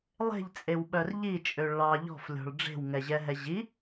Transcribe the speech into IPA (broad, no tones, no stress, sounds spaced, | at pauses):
lˠ e̤ ʎ t͡sʼ e w ɓ œ r ʎ i t͡ʃʼ ø ɭ ɑ ʎ ɔ̤ f lʲ ɔ̤ ɭ ɖ͡ʐ e̤ w ŋ ɛ ʑ ɛ ɦ ɛ ʑ i